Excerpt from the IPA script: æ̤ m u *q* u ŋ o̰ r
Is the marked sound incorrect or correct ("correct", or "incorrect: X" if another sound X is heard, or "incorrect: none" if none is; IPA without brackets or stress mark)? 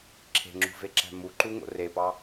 incorrect: ǃ